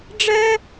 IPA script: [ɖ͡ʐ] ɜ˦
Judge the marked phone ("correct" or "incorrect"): correct